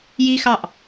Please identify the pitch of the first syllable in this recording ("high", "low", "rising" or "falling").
high